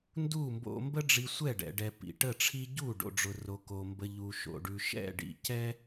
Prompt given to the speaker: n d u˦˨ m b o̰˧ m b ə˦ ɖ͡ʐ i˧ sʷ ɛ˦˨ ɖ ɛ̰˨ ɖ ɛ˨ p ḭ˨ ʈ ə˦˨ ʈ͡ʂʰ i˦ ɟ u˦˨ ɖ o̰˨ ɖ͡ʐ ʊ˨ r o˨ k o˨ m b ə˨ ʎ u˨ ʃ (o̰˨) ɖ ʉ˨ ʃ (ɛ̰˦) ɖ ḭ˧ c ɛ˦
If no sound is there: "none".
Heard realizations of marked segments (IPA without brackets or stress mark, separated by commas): o̰˨, ɛ̰˦˨